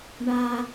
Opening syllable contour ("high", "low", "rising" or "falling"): low